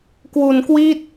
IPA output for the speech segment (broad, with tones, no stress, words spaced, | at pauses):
kwu˧nkwi˥˩t̚